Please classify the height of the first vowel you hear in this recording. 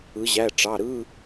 high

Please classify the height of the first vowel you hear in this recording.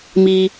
high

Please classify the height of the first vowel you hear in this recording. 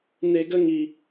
mid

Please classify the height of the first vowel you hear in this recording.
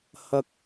low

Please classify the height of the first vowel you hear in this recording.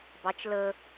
low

